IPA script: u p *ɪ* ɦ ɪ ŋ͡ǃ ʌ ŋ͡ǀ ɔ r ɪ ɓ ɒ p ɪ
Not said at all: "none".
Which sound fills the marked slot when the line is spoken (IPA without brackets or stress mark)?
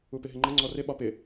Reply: ɪ